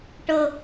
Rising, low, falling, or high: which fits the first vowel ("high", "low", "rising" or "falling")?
high